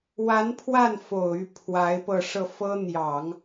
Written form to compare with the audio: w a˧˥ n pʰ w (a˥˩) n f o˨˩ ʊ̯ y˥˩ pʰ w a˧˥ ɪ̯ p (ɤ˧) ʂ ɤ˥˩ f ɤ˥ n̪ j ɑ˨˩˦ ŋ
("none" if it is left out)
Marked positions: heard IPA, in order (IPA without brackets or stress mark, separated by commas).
a˥˩, ɤ˧